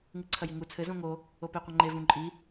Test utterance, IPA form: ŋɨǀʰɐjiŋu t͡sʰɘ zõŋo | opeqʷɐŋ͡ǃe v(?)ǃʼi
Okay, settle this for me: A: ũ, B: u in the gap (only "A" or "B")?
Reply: A